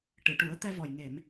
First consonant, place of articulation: retroflex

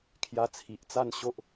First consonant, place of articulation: velar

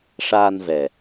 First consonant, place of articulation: retroflex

